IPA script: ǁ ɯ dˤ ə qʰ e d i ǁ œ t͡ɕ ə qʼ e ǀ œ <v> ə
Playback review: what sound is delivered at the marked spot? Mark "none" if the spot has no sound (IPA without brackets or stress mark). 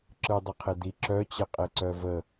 v